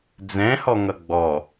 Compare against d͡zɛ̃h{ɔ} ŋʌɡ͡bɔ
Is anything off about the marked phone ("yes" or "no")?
no